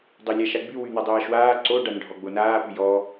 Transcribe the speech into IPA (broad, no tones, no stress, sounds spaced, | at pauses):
dˤ o lʲ a ʃ a ɡ͡b y w y n̪ a dˤ aː ʃ w aː ǀ o ɖ a n ɖʱ ɔ ɡ͡b o n aː p y j ɔ